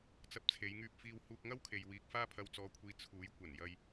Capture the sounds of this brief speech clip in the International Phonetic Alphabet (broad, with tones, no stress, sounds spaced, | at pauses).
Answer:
t͡s ɐ˧ p̚ t͡sʰ e˨˧ j ŋ yː˧ p̚ f iː˧ w h uː˧ k̚ ŋ ɐ˥ w kʰ e˨ j w iː˧ k̚ f aː˥ pʰ ɐ˧ w t͡s ɔː˧ kʷʰ iː˧ t͡sʰ uː˨˥ j kʷ ɐ˨˩ n j ɐ˧ j